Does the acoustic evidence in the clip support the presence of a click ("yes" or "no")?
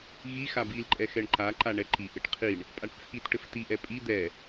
yes